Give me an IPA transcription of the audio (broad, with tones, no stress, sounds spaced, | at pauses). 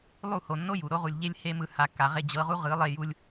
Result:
lˠ u˦˨ h o˨ nː o˦ j u˨ ɾ o˦ ʁ u˨ lʲ ʎ e˦ lʲ h e˦ m ɯ˧ h a˨ kː a˨ ʁ e˧ d͡ʑ ɤ˨˦ ʁ u˦ ʁ ɯ˨˦ lˠ e˧ j u˧ lʲ